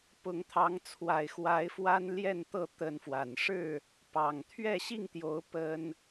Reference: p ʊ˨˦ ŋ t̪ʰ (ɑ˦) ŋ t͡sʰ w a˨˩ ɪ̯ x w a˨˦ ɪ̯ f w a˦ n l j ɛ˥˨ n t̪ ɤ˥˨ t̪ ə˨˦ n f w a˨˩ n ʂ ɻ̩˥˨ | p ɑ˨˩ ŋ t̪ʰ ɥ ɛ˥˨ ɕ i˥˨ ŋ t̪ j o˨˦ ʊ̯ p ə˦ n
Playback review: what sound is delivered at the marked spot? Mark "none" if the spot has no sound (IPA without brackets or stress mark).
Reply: ɑ˨˦